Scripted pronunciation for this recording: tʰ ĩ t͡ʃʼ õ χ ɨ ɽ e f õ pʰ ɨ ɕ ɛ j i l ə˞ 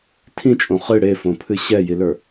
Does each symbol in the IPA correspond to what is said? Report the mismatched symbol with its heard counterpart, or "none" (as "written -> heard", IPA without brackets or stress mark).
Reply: none